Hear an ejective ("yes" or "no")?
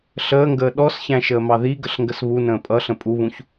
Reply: yes